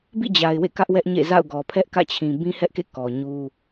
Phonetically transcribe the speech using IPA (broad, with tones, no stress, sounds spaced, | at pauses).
b ḭ˦˨ d͡ʑ a˨ ɪ̯ w ḛ˦˨ k ä˦ ʔ w ɛ˦ ʔ ɲ ḛ˦˨ z a̰˦˨ ʊ̯ ɡ ɔ˨ pʰ ɛ˦ ʔ k ä̰˦˨ t͡ɕʰ ĩ˨ b ĩ˦ h ɛ˦ ʔ k ḛ˦˨ k ɔ˨ ɲ u˦